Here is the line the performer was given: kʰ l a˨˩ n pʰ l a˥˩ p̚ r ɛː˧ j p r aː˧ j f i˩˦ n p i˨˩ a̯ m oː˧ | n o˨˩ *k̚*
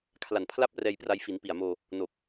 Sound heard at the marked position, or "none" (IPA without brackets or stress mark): k̚